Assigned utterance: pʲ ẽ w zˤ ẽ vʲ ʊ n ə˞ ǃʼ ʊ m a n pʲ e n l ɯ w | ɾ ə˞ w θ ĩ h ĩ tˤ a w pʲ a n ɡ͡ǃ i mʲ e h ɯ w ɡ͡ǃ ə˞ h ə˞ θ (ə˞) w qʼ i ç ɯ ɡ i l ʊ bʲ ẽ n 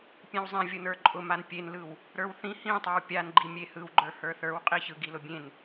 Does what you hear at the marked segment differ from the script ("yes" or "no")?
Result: no